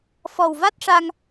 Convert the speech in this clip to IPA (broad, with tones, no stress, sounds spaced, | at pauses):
f ɔ˨˩ w v a˦˥ t̚ ʂ a˧ ŋ